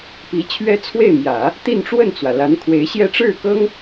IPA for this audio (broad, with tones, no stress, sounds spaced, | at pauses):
p i˧˥ t͡ɕʰ ɥ ɛ˥ t͡sʰ w e˥˩ ɪ̯ m j ä˨˩˦ | t̪ i˥˧ n ʈ͡ʂ w ə˥˩ n t͡s w ä˩ l a˧˥ n kʰ w e˧˥ ɪ̯ ɕ j ɛ˥ ʈ͡ʂ ɻ̩˥˩ k ɤ˥ ŋ